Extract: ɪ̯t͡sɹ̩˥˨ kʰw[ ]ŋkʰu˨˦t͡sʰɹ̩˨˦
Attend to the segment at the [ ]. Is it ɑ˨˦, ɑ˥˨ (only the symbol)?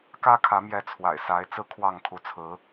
ɑ˥˨